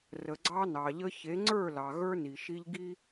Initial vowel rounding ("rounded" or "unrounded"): unrounded